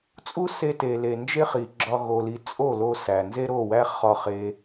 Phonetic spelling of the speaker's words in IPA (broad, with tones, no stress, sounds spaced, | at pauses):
t͡sʼ u˦ s e˧ t e˨ l e˨ n d͡ʒ e˦ χ i˨ ɡ͡ǁ ɒ˧ ɣ o˧ l i˧ t͡sʼ o˦˨ l o˧ s æ˨ n z e˦ ɾ o˦˨ w æ˦ χ ɒ˧ χ e˧